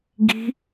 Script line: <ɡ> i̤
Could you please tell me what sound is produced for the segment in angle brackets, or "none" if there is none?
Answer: ɡ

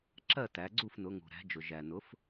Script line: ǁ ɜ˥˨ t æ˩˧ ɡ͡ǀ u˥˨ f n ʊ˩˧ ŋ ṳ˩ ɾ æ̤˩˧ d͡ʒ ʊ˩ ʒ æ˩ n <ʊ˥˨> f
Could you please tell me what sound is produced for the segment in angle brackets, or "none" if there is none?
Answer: ʊ˩˥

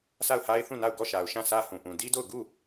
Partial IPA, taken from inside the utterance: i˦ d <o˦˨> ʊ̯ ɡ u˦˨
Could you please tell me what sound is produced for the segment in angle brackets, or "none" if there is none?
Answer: o˦˨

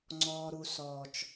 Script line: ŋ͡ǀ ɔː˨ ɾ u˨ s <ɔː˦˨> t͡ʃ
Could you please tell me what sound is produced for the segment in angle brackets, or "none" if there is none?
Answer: ɔː˨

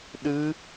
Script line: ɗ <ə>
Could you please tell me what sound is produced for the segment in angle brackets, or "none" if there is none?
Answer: ɨ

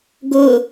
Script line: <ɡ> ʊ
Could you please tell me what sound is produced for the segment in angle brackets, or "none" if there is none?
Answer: ɡ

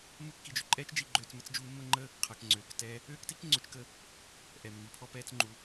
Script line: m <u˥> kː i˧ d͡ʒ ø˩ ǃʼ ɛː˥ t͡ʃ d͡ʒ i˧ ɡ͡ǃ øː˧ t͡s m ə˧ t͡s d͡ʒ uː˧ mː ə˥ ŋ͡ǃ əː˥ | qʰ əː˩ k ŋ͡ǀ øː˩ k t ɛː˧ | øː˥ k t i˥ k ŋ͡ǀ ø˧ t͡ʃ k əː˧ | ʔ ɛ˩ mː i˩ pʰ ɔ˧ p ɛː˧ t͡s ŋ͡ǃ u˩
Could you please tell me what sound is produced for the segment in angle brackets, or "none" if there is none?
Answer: u˥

